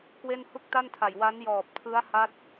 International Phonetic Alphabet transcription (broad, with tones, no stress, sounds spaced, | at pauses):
k w e˥˩ n h u˥˩ k̚ t a˥˩ n tʰ a˨˩ j w a˦˥ n j ɔː˨˩ p̚ tʰ ɯ˦˥ a̯ h a˦˥ t̚